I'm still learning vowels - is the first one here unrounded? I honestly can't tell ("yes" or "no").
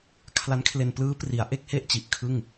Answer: yes